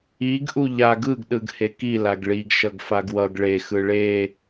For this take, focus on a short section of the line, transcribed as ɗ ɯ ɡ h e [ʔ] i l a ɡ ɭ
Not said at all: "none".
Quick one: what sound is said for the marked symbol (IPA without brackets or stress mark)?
k